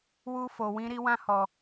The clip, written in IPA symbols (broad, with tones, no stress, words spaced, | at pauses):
wu˦ fo˧wĩ˦ɾi˦ wã˦hɔ˧